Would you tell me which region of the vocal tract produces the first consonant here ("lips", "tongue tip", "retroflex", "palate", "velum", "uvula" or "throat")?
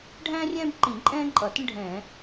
retroflex